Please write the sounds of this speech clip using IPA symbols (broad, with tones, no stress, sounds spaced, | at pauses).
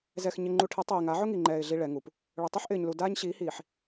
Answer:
z ɛ˨ x ɲ ɪ˨ ŋ͡ǃ u˨ ʈʰ ɪ˨˦ tˤ iː˨ ŋ a˨˦ ʕ ʊ˦ ŋ i˨ ŋ͡ǃ ɛː˨ ɪ̯ ɮ i˦ ɭ ɛ˨˦ ŋ u˨ p | ɭ ʊ˨ tˤ u˦ ħ ʔ ɪː˨ ɲ l u˨ d aː˦ ɲ ɕ iː˨˦ h iː˨ ħ